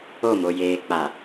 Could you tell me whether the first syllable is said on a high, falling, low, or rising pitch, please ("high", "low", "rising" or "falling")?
falling